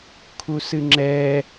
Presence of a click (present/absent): present